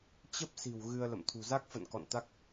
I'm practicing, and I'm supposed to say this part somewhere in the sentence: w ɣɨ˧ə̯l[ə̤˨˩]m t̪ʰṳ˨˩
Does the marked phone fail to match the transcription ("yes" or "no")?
yes